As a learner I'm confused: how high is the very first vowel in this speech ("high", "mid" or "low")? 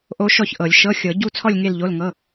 mid